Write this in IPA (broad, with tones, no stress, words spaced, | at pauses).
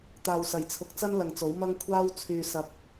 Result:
t̪aː˨wsɐ˨˩jt͡sʰʊ˨k̚t͡sɐ˥n lɐ˨ŋt͡so˨˥wmɐ˥ŋ kʷʰaː˥w t͡sʰyː˨ sɐ˨p̚